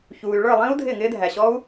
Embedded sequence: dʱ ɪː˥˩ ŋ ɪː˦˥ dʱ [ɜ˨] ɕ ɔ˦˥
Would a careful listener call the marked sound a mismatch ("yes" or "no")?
yes